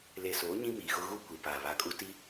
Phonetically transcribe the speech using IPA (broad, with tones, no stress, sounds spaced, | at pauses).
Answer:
l e˨ s oː˨˦ ɲ ĩ˦ m iː˨ ɣ ʊ˦ ɣ u˦ kʷ i˨ p aː˨ β a˨˦ kʼ u˦ t i˦